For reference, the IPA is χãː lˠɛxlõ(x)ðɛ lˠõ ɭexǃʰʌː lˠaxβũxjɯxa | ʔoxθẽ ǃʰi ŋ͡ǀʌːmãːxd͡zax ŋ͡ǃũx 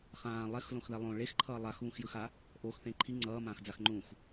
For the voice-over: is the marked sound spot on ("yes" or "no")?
yes